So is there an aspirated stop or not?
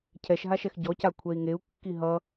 yes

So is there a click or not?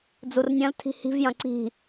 yes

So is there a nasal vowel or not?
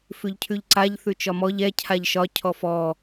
no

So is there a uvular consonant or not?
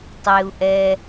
no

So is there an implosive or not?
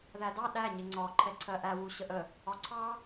yes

